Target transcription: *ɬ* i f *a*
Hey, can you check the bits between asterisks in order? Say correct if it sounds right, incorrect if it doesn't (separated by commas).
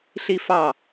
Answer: correct, incorrect